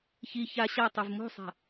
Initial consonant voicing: voiceless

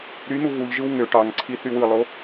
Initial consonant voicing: voiced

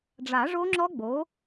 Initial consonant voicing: voiced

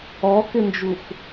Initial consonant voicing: voiceless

